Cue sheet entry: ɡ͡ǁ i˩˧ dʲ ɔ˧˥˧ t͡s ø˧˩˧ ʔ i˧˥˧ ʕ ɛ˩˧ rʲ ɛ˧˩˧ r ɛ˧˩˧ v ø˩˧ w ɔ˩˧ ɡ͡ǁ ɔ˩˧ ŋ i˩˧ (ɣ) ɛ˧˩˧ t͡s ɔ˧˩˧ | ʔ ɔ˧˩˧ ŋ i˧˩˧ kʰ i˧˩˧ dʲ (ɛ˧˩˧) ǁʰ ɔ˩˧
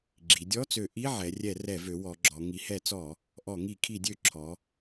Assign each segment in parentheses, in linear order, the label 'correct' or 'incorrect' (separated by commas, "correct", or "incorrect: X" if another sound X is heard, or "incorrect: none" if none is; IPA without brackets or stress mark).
incorrect: h, incorrect: ø˧˩˧